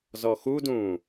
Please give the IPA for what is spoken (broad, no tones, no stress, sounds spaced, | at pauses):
z ɔ x u d ũː